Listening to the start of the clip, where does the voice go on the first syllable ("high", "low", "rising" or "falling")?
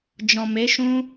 low